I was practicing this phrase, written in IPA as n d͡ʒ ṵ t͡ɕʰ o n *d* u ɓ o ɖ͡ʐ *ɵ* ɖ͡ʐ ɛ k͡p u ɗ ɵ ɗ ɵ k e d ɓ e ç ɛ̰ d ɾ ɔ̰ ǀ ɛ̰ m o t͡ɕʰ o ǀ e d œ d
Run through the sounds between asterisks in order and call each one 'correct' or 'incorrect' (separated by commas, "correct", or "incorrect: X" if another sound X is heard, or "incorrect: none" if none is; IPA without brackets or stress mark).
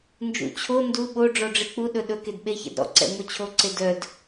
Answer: correct, incorrect: ɔ